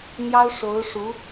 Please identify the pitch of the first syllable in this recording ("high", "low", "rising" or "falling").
high